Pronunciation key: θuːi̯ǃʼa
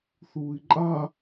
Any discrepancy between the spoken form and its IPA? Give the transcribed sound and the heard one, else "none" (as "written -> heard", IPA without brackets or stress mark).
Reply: none